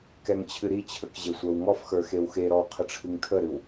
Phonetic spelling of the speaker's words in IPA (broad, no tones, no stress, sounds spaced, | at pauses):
k ɛ ŋ t͡ɕʰ ɨ ɾ i t͡ɕʰ ə k ʑ e sʷ ə˞ w ŋ ɔ f x ə˞ x e w x e ɾ ɔ w qʰ ə ʈ͡ʂʰ ɨ ŋ tʰ ə ɾ ɨ w